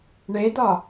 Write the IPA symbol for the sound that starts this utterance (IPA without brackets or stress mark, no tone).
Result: ɳ